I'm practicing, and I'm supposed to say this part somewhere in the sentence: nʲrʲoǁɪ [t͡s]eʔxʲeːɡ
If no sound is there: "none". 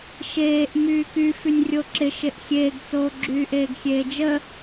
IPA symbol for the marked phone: ʃ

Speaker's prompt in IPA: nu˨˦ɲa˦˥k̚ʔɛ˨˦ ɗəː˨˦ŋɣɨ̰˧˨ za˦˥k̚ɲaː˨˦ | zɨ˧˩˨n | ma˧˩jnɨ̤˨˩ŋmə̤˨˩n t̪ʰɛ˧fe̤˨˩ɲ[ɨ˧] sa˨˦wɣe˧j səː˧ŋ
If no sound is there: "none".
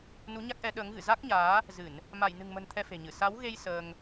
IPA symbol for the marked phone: ɨ˧˩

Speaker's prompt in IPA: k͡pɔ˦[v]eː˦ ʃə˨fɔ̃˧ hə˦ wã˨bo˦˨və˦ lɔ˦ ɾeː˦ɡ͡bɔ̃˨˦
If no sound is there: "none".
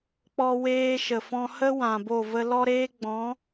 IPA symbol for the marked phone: w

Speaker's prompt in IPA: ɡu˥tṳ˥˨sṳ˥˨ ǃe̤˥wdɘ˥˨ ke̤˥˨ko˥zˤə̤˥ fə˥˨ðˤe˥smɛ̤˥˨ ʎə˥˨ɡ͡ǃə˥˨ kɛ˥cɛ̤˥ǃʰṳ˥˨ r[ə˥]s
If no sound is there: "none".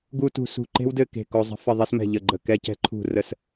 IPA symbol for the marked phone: ə˥˨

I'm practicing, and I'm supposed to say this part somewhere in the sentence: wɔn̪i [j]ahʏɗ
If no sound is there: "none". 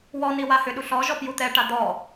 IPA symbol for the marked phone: w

